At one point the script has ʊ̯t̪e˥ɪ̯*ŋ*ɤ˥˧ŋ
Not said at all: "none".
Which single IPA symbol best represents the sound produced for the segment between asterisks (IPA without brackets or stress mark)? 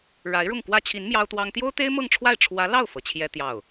m